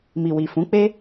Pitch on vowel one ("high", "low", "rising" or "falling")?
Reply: low